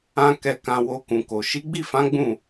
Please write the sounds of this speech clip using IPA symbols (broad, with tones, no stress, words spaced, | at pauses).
ã˧ kɛ˨kã˨ wo˧kũ˨ko˨ ʃi˨˦ɡ͡bi˦˨fã˨˦ ɡ͡bũ˦˨